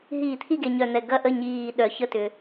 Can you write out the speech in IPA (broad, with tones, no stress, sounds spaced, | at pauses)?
ɦ iː˧˩˧ t̪ʰ i˥˩ ɡ e˨˩ ɲ œ˨˩ n̪ ɛ˨˩ ɡ ɐ˥˩ ʔ ə˥˩ ɲ iː˨˩ ɗ œ˨˩ ç ə˥˩ t ʏ˨˩